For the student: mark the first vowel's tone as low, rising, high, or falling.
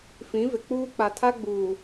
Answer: rising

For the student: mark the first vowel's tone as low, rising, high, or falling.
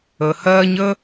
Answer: low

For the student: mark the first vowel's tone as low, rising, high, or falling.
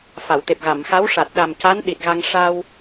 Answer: low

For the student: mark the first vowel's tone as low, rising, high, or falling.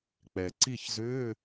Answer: low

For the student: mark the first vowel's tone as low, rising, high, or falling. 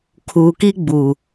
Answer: low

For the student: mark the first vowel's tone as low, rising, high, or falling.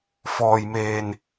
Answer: low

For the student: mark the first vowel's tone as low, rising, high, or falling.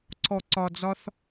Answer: low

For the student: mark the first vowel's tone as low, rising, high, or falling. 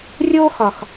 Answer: high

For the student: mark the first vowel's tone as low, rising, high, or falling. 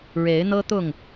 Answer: rising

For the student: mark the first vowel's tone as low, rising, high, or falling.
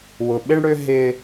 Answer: low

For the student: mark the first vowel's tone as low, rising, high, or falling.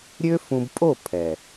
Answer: high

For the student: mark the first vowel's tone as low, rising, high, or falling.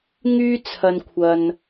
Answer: high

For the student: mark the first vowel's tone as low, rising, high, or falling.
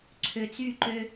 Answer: low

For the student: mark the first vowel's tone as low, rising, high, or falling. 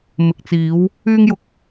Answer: low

